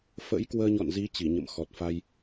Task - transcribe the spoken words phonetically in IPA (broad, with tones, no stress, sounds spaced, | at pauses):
f ə̰˧˥ j k w əː˧ ɲ ɔ̰˧˨ n z i˨˦ t͡ɕ i˧˩ ɲ ə̰˧˨ m x ɔ˨˩ t̚ f a˧ j